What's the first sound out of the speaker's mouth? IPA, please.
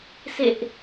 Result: s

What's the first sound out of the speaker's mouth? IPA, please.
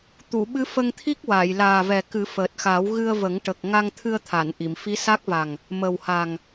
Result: t̪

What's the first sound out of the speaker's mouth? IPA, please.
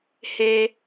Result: h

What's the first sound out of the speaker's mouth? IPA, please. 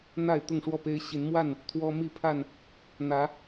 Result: n̪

